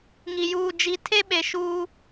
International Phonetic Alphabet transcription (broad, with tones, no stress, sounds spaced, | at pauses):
ŋ i˨ j uː˨ d͡ʒ i˨˦ tʰ e˦ ɓ e˨ ʃ uː˦